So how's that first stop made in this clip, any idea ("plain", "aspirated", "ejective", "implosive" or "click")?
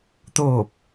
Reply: plain